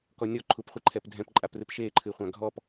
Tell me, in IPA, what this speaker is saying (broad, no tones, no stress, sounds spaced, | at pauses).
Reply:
k ɔ nʲ ɔ ǃʰ u p χʷ ɨ ǃʰ ɛ p dʱ ɛ̃ p ǃʼ a p r ɨ p ʃ e ǃʰ ɨ χʷ ã ɡʱ ɔ p